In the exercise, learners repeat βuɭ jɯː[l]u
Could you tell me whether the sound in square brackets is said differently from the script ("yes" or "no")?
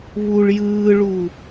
yes